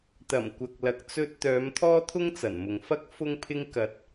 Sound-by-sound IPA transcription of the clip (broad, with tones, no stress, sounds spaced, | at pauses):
t̪ ɐ˨˩ m kʷ ɐ˨ k̚ l ɐ˨ k̚ t͡s ɵ˧ t̚ t̪ œː˨˧ m t̪ʰ ɔː˥ t̪ʰ ʊ˥ ŋ t͡s ɐ˨˩ n m ʊ˨ ŋ f ɐ˥ k̚ f ʊ˥ ŋ pʰ ɪ˥ ŋ k ɐ˧ t̚